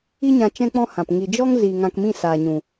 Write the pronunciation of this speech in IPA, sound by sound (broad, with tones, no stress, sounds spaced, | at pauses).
i˦ ɲ ã˧ t͡ʃ ɛ̃˦ k͡p ɔ̃˦ h ã˨ p ŋ i˨ d͡ʒ ɔ˦ ŋ z i˨ ŋ ã˧ k m ĩ˦˨ s aː˨ ɲ ũ˨